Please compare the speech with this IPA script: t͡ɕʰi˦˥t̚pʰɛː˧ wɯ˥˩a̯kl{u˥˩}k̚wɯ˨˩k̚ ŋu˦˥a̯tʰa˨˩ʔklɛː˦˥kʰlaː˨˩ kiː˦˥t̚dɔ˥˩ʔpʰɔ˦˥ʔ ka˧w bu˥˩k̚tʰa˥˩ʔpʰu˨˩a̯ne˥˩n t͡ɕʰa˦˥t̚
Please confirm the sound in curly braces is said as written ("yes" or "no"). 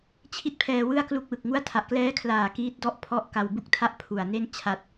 yes